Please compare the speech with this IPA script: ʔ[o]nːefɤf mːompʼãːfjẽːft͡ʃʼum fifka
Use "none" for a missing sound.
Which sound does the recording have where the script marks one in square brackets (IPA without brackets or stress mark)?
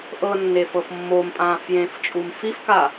ɤ